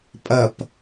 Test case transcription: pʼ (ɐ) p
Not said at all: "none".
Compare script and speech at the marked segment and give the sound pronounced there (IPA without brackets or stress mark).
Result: ɐ